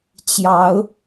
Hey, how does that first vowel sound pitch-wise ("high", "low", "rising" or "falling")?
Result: rising